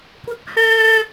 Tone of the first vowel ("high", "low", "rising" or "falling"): high